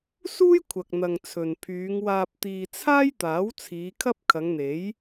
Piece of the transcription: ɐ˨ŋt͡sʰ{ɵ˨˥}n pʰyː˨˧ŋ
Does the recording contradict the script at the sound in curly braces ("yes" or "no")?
yes